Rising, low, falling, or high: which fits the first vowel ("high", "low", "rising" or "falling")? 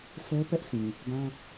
high